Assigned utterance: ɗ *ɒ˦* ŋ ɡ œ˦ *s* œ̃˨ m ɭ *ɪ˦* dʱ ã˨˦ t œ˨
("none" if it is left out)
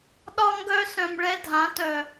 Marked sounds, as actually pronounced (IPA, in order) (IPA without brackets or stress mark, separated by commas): ɒ˦, s, ɛ˦